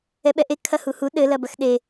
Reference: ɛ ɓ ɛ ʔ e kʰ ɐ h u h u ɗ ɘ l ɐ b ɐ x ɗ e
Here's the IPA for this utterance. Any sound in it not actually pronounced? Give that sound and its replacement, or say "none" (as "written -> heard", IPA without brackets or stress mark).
none